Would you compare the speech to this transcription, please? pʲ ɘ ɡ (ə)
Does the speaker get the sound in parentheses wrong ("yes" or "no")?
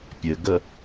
no